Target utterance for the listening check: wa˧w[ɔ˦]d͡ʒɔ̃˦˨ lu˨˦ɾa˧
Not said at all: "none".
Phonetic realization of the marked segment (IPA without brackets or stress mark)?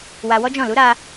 ɔ˦